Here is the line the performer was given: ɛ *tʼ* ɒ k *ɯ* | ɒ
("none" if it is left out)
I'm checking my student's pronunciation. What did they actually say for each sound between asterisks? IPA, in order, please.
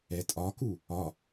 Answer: tʼ, u

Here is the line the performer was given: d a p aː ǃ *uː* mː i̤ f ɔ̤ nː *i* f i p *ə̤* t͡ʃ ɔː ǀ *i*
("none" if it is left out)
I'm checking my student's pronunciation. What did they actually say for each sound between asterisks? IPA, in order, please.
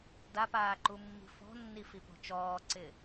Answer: u, i, ɔ̤, ɪ

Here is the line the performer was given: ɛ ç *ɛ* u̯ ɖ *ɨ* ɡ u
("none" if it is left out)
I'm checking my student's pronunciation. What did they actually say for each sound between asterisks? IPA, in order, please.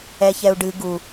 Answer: ɛ, ɨ

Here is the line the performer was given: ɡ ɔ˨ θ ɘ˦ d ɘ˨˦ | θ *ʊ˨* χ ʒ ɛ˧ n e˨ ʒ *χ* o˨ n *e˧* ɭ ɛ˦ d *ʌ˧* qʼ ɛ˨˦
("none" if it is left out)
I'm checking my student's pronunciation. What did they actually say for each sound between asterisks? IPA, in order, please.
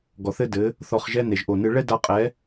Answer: ɔ˨, ʔ, ɨ˧, a˧

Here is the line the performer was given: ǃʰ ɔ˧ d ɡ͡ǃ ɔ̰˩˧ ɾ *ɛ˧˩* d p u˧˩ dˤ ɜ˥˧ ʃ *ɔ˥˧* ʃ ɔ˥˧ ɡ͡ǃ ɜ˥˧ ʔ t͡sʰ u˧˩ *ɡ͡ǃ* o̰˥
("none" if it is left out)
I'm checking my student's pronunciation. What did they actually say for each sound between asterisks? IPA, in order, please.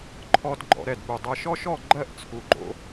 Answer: ɛ˧˩, ɔ˥, ɡ͡ǃ

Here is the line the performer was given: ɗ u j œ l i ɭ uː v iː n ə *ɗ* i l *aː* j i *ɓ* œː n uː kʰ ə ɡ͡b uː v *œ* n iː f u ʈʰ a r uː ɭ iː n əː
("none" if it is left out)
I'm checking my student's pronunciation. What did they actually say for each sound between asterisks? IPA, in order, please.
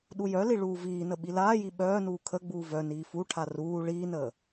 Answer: ɓ, aː, ɓ, œ

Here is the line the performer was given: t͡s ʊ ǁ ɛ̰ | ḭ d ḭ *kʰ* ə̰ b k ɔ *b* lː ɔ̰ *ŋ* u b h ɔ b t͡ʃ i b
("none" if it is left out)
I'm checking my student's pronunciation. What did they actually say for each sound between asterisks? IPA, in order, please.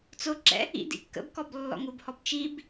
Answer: kː, b, ŋ

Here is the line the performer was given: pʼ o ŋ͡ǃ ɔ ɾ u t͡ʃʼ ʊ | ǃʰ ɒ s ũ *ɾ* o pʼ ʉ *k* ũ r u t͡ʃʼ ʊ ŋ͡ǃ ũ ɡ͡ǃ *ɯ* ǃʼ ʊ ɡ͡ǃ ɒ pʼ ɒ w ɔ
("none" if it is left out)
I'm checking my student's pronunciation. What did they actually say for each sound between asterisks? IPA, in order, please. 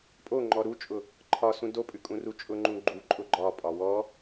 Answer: d, kʼ, u

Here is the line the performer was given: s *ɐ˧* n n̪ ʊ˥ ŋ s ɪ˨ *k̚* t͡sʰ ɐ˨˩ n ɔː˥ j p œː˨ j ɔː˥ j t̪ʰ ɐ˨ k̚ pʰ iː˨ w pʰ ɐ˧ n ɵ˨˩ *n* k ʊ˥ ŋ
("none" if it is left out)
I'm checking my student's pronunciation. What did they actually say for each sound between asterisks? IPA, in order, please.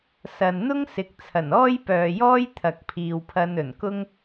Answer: ɐ˨, k̚, n

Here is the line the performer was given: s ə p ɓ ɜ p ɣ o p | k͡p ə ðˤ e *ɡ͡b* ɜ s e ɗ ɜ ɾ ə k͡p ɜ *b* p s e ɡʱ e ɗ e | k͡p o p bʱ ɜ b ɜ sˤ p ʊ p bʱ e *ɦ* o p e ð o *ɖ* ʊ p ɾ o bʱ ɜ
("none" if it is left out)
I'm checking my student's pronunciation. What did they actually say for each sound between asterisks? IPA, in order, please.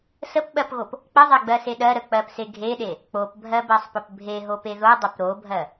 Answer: ɡ͡b, none, ɦ, dˤ

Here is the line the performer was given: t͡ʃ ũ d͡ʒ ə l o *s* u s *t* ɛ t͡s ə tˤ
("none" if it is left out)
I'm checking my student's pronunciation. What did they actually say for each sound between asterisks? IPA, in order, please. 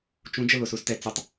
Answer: s, t

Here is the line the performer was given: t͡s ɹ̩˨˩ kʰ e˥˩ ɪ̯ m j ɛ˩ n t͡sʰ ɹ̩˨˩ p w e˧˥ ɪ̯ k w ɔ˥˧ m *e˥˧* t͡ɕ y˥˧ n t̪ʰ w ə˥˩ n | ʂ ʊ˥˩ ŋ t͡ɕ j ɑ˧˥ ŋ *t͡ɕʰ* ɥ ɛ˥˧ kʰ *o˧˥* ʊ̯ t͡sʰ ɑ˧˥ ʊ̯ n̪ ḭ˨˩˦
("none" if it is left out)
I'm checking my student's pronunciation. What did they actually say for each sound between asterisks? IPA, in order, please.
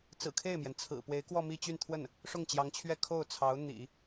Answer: i˥˧, t͡ɕʰ, o˥˩

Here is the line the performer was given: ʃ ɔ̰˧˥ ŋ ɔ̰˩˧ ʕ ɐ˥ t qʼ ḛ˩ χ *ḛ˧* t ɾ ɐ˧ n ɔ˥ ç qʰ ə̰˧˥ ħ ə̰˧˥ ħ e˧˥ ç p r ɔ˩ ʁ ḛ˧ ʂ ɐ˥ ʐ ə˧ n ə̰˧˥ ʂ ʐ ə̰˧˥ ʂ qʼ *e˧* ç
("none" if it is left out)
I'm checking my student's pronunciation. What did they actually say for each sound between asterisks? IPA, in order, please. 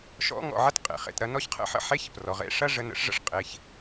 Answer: ḛ˧, e˩˧

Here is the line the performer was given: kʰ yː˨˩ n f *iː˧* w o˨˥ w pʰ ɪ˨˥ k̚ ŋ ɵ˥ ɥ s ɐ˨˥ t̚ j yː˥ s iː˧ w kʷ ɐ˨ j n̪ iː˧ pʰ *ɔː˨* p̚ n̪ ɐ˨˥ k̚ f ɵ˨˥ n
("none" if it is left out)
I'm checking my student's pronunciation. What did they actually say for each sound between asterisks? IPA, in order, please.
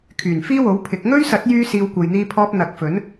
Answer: iː˥, ɔː˧

